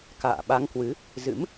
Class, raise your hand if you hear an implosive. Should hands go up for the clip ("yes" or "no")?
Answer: yes